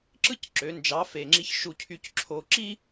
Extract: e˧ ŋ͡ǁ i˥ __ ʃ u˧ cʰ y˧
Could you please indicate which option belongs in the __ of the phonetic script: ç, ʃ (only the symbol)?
ç